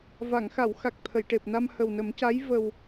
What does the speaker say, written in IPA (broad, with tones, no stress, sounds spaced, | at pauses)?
v a˨˩˨ ŋ x a˨˩˨ w x a˨˩ k̚ t̪ʰ ə˨˩˨ j ʈ e˨˩ p̚ n a˧ m h ə˨˩ w n ə˨˩˦ m c a˧˥ j v ə˨˩ w